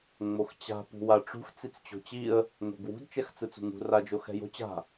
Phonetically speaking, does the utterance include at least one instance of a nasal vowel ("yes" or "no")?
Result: no